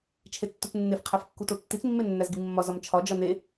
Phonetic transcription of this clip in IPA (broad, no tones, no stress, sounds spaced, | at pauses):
t͡ʃʰ e tː u t͡s nː e f qʰ æ f kː u t o tː i t͡s mː e nː æ z ɡ i mː ɒ z ɒ m t͡ʃʰ ɒ d͡ʒ ɒ n e